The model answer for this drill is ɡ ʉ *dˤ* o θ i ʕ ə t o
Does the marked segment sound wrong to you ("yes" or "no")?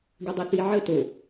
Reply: no